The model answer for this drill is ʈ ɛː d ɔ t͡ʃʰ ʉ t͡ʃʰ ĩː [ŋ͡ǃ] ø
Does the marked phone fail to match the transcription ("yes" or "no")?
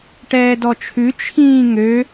yes